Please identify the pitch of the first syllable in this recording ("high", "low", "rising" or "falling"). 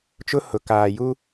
high